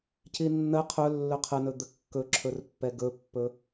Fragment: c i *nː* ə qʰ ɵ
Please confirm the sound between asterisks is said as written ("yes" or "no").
yes